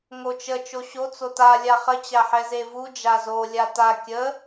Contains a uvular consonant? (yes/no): yes